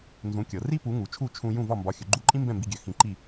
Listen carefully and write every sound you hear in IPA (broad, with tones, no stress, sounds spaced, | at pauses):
n z ũ˩˥ kʲ ɤ˩ r i˥ p u˩˥ ŋ u˩ t͡ʃʰ u˥˩ t͡ʃʰ ũ˧ j ũ˥˩ v ɒ˥˩ m b ɒ˩˥ xʲ ɵ˩ ɡ͡ǃ u˥˩ ǃʼ ĩ˥ m b ɛ̃˥˩ m b i˧ ɡʲ ø˩˥ x ĩ˩˥ ǃ i˥˩